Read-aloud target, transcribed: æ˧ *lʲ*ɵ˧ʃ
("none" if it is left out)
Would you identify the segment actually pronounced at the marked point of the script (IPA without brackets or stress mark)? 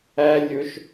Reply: lʲ